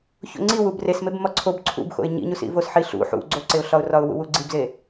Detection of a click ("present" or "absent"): present